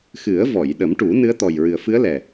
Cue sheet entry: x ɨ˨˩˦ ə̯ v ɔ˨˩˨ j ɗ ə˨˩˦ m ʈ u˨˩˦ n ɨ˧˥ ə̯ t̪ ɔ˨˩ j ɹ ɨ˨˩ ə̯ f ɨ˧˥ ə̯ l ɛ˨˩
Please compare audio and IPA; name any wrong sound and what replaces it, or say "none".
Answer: none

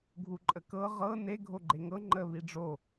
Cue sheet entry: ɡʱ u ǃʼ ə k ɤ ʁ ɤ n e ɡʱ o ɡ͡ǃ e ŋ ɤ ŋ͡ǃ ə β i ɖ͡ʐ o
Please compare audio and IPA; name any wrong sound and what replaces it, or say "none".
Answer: none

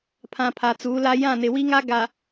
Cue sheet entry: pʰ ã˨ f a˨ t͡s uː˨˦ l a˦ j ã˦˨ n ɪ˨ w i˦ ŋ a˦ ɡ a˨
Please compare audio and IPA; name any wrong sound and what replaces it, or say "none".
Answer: f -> pʰ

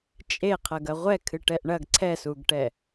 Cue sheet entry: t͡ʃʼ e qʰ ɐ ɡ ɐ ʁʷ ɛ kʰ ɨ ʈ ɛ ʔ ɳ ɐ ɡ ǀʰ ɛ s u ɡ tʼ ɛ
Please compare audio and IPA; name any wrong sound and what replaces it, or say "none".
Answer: tʼ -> ʈ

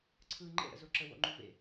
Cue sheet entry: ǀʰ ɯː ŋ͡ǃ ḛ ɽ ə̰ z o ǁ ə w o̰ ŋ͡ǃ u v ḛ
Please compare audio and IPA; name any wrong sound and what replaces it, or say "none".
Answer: none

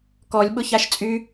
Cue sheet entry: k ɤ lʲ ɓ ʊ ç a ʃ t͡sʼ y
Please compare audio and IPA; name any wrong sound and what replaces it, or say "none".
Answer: ɤ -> ɔ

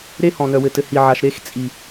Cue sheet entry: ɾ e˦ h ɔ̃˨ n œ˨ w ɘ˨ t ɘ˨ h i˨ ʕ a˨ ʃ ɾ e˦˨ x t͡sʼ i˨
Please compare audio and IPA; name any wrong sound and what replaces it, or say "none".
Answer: none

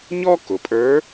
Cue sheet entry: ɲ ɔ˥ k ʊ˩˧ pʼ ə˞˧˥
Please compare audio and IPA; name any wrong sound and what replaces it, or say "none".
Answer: none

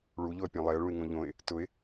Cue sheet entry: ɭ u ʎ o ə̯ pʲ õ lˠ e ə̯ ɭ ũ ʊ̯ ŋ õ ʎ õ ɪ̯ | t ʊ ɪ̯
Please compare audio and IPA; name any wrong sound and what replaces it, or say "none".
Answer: ʊ̯ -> ɪ̯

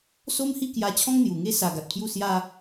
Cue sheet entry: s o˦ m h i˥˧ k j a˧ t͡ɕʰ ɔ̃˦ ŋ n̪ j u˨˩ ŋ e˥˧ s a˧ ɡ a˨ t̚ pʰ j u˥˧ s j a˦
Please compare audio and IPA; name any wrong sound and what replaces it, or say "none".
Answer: none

